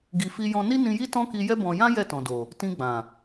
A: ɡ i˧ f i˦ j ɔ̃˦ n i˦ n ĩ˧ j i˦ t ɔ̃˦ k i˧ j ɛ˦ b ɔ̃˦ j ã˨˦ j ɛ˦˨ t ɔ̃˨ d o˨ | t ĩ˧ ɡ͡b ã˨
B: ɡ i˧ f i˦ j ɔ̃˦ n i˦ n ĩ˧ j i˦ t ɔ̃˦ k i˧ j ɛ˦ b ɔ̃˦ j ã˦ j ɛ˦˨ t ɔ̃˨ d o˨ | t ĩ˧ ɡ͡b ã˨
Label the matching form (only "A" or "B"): B